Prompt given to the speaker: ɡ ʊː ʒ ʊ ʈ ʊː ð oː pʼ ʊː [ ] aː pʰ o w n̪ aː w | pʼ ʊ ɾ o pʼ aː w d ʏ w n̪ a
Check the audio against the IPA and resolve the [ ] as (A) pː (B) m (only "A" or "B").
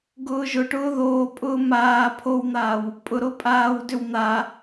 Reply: B